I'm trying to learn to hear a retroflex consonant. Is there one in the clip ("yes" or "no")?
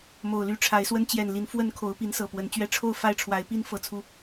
yes